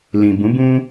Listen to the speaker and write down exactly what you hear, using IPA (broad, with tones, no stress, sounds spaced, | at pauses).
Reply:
l ĩ˨ b ũ˨˦ b ũ˧